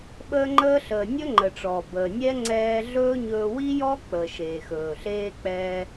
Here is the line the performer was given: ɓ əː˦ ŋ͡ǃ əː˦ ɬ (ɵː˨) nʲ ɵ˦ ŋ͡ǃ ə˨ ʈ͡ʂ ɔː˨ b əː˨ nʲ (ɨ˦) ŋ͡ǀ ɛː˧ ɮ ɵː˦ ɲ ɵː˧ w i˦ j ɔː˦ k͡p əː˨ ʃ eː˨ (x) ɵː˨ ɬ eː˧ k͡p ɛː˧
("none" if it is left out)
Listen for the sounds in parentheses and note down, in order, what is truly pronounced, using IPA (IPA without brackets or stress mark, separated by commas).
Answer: əː˨, ɛ˦, x